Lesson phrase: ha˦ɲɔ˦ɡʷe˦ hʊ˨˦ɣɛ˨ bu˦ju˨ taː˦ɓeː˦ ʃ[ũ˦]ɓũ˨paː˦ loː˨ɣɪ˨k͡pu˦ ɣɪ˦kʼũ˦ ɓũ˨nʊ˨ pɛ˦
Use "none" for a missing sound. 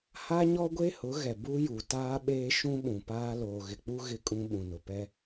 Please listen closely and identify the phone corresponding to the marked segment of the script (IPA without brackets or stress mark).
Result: ũ˦